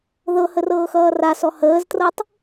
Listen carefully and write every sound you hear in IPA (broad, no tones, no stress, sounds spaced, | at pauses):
ð ɤ h ə r ɤː x ʌː r a s ɔ h əː z t r ɤ tˤ